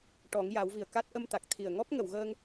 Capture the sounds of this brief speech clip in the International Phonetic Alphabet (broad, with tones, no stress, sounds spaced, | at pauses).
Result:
ʈ ɔ˨˩˦ ŋ j a˨˩˦ w v i˨˩ ə̯ k a˦˥ t̚ ʔ ə˧ m t̪ a˨˩ k̚ t̪ʰ i˨˩ ə̯ ŋ ɔ˦˥ p̚ ŋ ə˨˩˨ w ɣ əː˧ ŋ